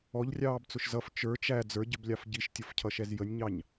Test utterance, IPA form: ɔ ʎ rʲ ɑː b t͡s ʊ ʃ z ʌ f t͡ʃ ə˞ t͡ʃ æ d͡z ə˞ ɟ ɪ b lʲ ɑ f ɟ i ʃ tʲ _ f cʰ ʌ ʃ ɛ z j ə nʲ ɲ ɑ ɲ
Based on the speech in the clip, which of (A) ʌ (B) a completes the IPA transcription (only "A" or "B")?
A